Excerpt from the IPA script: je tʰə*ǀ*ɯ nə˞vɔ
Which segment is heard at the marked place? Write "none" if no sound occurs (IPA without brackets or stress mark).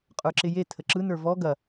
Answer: ǁ